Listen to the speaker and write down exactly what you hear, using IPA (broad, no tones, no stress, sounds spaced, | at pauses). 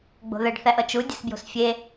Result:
ɡ͡b o̤ ð ə ɖ θ æ ʔ ʌ t͡ʃ u dʲ ə s b j o̤ s fʲ e